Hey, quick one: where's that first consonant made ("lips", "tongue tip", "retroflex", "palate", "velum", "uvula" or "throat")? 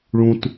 retroflex